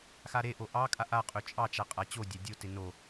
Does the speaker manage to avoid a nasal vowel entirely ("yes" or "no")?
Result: yes